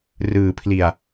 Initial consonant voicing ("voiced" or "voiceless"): voiced